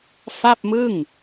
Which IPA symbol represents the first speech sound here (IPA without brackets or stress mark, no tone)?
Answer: f